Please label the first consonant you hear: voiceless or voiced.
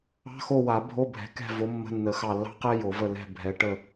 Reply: voiceless